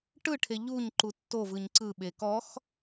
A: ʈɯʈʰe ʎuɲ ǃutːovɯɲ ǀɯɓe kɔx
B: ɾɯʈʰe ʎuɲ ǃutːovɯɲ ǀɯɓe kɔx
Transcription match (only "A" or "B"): A